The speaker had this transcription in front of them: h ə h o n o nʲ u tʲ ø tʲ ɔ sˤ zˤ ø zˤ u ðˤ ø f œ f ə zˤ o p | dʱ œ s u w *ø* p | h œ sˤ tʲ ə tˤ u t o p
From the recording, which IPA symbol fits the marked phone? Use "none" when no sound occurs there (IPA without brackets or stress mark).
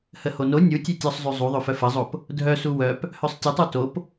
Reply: œ